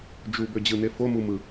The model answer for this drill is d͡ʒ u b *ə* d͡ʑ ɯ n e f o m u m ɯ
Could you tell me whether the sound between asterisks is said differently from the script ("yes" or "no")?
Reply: yes